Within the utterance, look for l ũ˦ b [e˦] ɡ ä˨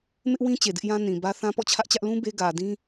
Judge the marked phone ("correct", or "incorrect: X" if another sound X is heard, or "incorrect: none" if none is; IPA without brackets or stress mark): correct